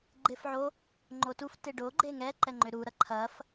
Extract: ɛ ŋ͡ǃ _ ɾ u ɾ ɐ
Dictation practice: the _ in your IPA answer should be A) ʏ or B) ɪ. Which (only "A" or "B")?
A